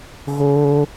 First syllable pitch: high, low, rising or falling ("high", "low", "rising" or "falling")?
high